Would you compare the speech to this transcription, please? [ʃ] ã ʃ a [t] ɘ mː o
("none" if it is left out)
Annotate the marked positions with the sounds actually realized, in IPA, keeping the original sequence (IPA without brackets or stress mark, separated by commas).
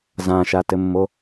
z, t